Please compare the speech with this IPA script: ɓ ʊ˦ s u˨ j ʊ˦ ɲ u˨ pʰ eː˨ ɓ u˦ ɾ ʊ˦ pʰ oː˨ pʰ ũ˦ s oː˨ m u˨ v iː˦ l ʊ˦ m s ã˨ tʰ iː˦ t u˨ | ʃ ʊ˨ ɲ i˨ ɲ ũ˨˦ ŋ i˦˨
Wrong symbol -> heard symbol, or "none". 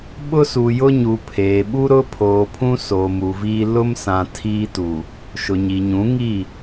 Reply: none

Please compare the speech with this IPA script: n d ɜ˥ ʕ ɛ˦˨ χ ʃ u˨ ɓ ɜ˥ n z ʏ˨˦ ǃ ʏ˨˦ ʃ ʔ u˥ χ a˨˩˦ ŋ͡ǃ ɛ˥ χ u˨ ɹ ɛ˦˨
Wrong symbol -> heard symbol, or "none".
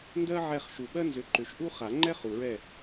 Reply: none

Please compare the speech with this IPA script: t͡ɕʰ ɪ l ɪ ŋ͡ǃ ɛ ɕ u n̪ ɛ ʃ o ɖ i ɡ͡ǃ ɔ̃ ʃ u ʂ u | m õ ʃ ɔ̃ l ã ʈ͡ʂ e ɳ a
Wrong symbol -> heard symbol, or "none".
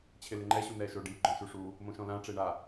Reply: none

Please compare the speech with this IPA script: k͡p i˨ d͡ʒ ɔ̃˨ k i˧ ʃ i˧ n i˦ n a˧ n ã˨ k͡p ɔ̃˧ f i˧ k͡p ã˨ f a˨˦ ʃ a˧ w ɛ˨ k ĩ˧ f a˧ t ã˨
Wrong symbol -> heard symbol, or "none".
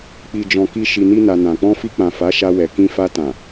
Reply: none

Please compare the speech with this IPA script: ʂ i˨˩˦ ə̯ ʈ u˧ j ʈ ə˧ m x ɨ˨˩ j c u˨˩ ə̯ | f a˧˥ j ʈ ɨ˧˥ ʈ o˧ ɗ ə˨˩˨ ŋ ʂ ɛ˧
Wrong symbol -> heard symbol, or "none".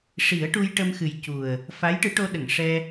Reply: none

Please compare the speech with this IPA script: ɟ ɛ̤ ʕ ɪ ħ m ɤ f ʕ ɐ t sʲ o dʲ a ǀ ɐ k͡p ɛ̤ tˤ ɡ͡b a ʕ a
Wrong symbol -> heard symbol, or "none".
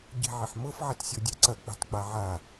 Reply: none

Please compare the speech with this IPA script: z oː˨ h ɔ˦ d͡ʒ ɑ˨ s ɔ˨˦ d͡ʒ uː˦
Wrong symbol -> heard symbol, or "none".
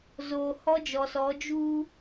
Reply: ɑ˨ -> ɔ˨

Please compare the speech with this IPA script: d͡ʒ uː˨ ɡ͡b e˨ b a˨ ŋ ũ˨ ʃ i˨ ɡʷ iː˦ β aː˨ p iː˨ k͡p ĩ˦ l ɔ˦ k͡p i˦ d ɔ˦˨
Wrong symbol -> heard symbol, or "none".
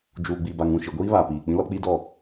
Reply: e˨ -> i˨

